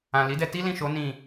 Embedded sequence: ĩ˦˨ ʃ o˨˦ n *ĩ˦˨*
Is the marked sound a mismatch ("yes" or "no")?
no